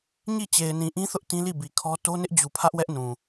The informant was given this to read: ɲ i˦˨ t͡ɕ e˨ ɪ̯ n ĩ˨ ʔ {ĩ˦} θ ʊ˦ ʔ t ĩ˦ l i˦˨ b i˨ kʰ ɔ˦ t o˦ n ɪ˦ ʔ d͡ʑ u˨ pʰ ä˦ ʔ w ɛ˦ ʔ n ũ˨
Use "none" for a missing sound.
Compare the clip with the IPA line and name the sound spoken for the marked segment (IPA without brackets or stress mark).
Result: ĩ˦